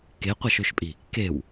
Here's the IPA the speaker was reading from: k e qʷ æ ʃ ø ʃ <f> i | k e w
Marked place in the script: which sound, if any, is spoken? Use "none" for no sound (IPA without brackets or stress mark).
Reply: pʼ